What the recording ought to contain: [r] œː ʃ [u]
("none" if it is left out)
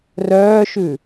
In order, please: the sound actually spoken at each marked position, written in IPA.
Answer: r, ʉ

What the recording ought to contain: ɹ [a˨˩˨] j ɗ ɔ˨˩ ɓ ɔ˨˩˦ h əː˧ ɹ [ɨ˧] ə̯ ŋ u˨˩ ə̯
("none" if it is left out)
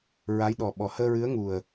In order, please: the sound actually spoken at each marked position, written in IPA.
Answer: a˧˥, ɨ˧˥

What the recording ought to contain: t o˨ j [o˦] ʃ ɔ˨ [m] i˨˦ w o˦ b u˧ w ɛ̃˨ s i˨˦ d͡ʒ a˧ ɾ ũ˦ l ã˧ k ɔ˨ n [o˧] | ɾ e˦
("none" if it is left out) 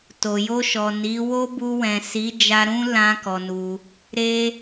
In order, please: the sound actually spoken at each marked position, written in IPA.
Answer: o˧, n, u˧

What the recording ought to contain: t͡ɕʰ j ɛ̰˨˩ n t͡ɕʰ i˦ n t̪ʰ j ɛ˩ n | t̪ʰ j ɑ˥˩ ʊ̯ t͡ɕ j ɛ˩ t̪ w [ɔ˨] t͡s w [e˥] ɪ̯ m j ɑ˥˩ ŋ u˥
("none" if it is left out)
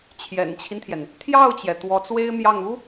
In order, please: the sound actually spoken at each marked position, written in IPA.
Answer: ɔ˧˥, e˥

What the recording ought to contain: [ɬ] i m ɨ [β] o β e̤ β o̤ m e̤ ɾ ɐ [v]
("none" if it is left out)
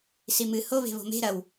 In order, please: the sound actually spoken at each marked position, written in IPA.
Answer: s, h, w

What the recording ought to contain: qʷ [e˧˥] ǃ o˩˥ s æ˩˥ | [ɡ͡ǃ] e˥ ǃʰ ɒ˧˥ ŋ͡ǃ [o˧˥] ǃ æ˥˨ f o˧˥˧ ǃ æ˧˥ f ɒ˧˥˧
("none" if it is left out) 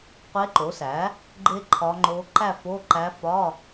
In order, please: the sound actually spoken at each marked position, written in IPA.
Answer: e˧˥, ɡ͡ǃ, o˧˥

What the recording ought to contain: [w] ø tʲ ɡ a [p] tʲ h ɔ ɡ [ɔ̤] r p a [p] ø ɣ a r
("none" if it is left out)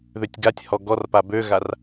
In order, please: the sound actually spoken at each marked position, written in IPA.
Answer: ð, none, ɔ, b

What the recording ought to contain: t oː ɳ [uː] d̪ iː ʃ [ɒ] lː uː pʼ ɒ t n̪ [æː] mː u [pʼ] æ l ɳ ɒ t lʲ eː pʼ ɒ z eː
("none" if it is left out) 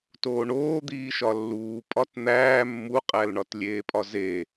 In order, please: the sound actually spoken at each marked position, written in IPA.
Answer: oː, ɒ, æː, qʼ

